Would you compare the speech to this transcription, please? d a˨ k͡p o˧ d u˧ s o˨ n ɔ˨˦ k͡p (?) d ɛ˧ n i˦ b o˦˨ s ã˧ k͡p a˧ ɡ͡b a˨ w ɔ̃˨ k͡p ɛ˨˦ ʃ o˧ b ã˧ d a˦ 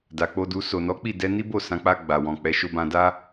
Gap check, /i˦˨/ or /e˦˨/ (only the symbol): i˦˨